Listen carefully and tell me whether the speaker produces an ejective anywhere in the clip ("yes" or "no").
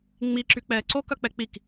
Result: no